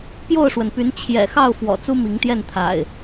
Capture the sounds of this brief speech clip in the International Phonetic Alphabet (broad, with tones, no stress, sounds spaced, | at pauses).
p j o˥˨ ʊ̯ ʂ w ə˩ n p y˨˦ n t͡ɕʰ j ɛ̰˨˩ x ɑ˥˨ ʊ̯ f w ɔ̰˨˩ t͡s u˦ m i˨˦ ŋ t̪ j ɛ˥˨ n t̪ʰ a̰˨˩ ɪ̯